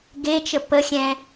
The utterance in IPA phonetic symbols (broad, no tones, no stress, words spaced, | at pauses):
ɡet͡ʃə pəxʲɛ̃